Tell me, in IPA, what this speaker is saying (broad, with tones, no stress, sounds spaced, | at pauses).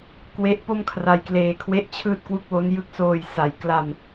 k w e˦˥ ʔ p o˥˩ m kʰ r a˧ j k l eː˧ kʰ w e˥˩ ʔ t͡ɕʰ ɯː˥˩ t̚ k w u˥˩ k̚ w o˦˥ n j ɯ˥˩ k̚ s oː˧ j s a˩˦ j k l a˧ m